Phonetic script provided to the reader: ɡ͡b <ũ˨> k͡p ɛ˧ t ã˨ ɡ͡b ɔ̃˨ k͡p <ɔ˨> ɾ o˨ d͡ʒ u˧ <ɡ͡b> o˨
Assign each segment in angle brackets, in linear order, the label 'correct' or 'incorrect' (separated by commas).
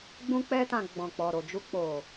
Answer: incorrect, correct, incorrect